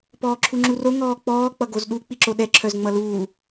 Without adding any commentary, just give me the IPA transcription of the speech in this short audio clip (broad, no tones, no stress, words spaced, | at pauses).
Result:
pɔːǁʰuŋ͡ǁuro ŋɔːk͡pɔː k͡pʌɡozɗu k͡piǁoɗɛ ǁʰœzŋ͡mʌluː